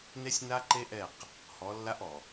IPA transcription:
n e˦ sʲ n a˦ ǃ e˦ ʔ ɛ˦˨ q | h ɔ˨˦ lː a˦ ʔ ɔ˨

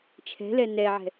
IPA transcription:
t͡ʃʰ ɛ̤ l ɛ n ɛ ʕ ɛ̤

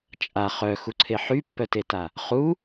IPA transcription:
t͡ʃʼ a χ œ x u ǀʰ e ħ y pː œ t e t a | χ u

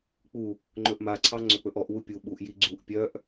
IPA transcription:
k͡p u | ŋ͡ǃ ɵ ʔ m a ǀʰ ɑ ŋ͡ǀ ɵ k͡p ɵ ʔ ɔ ʔ w u pʲ u ɓ u ʔ j i ɡ͡ǀ u ʔ pʲ œ ʔ

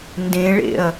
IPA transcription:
n d ẽ ɭ ḛ ɐ̯

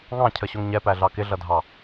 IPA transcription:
ŋ ɑ̃ cʰ ə ɕ ʊ ŋ ɲ ɛ p æ ɮ ɑ k ɪ ɮ ʌ dʱ ɑ

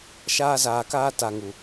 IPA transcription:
ʃ aː˧ z aː˨ k aː˧ t a˨ ŋ u˨

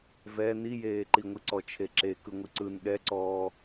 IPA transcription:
v ɛ n i j eː ǃ i ŋʷ ɨ ǀ ɔ t͡ʃʰ e ǁ e k ɯ ŋʷ ɨ ǀ ɯ n ɠ ɛ ǀ ɔː

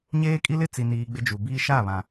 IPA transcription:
ɲ eː˦ kʼ i˦ l ɪ˦ t͡s i˨ n iː˨ ɡ͡b ɪ˦ d͡ʒ u˨ b iː˦ ʃ a˦˨ β ã˨

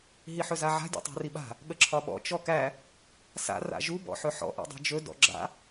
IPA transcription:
ɦ i ħ ɵ z a ʕ a̤ dʲ ɔ̰ tˤ a̤ r i ɓ a̤ | ɠ ə ǁʰ ɒ ɓ ɔ̰ t͡ʃ ɔ k æ | s a̰ r a̰ ʒ u b ɔ̰ ħ ɵ ħ ɔ̰ ʔ ḭ dˤ i̤ d͡ʒ ɵ d ɔ̰ ɡ͡ǁ a̰

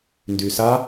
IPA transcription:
n d y s a

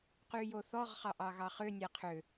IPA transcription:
q y j o θ ɔ ʁ χ ɑ ʔ ɑ ɣ ɑ χ ʏ nʲ æ qʰ ʏ

